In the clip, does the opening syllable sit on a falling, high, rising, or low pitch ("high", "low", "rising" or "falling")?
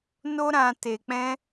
high